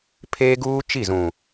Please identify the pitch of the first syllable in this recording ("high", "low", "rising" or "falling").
high